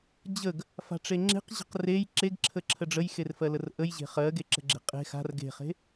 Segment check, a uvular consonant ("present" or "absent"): present